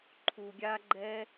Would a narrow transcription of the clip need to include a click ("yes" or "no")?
yes